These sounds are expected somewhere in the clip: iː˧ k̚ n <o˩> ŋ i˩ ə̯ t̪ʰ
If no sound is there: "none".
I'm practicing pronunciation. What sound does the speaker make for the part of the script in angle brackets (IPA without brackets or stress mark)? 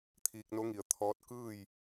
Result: o˧˥